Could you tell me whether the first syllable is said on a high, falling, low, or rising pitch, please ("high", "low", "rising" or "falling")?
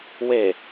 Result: low